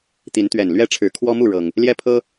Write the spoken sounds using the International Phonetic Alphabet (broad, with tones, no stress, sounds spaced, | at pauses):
t̪ i˨˦ n t̪ ɥ ɛ˨˩ n l ɥ ɛ˥˨ ʈ͡ʂʰ ɻ̩˨˩ kʰ w ɔ˦ m u˥˨ ɻ ɤ˨˩ ŋ | l j ɛ˦ pʰ ɤ˦